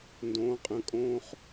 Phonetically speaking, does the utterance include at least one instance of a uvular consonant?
yes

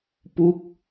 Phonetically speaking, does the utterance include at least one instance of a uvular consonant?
no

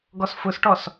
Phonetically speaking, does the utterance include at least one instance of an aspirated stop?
no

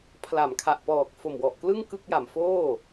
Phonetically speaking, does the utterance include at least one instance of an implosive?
no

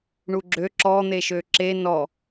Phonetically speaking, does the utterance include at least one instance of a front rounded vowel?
yes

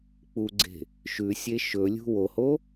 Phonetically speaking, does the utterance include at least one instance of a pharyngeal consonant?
no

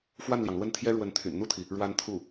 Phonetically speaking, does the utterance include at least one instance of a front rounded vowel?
yes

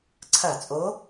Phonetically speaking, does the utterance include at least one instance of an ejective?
yes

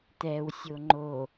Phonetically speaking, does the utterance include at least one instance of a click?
yes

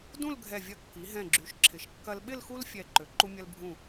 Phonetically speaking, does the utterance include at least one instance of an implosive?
yes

